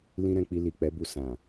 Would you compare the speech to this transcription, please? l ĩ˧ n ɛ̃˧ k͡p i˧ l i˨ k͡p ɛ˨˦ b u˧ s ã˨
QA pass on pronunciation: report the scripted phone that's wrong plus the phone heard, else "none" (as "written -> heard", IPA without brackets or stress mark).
n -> ɾ